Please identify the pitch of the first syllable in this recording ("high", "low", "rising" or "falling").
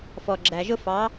low